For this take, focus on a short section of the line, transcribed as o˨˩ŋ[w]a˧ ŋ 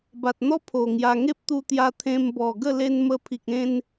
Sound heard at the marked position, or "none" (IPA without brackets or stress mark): j